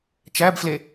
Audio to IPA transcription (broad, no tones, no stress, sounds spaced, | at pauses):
t͡ʃ æ b f l e